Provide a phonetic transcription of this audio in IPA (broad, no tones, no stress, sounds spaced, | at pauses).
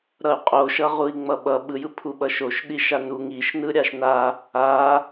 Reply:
ɾ ʌ y̯ qʼ o ʃ ʌ ʁ u i̯ ŋ͡m ʌ ɓ ʌ ɓ ɯ j ɯ pʰ u ɓ ʌ ʃ o ʃ ɗ i ʃ a n u ŋ i ʃ n ɯ ɾʲ a ʃ n a | a